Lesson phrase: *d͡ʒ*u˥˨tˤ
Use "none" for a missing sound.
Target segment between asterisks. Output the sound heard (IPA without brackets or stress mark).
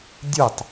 dʲ